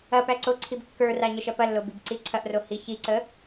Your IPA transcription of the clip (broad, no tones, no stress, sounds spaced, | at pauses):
ɐ p æ ǀ o ǀʰ i b kː ə˞ r a ɲ ə ʃ ɐ p ɐ lː o b i b ǀ i ǀʰ ɐ ʔ r o h i ç i ǀ ə